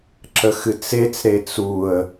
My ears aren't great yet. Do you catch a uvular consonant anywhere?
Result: no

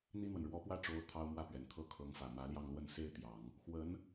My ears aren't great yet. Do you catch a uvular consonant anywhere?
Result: no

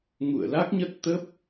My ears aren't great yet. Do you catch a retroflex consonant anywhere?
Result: no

